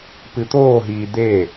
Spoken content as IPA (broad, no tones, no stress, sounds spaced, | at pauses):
p ɨ t̪ oː ɦ iː d̪ e